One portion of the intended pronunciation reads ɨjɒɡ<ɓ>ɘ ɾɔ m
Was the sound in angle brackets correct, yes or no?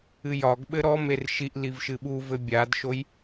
yes